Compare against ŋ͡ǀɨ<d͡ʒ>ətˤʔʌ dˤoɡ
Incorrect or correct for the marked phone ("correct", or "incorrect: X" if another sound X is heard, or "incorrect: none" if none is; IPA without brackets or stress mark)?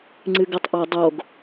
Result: incorrect: ɡ